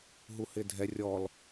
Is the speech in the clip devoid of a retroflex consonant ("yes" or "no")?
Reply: yes